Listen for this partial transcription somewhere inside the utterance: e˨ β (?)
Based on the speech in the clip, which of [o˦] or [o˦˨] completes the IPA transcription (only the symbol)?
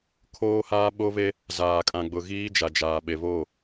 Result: o˦˨